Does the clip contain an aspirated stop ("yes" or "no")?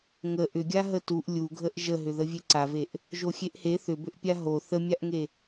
no